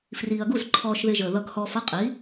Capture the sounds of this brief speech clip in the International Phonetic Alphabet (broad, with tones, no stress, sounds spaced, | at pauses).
f r iː˩ ɐ̯ ɡ u˥˩ z ǃʰ ɔː˧ ʃ ð ɪ˧ ʒ əː˩ ð ʌ˧ ɡ h ɔː˧ f ʌ˥ qʼ i˩˥